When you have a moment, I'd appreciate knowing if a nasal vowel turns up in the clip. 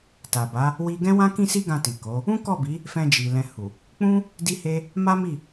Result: yes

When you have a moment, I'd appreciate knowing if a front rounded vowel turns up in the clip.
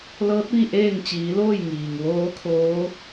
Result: no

